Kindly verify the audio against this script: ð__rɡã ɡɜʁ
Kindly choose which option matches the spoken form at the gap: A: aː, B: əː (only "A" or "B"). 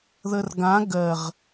B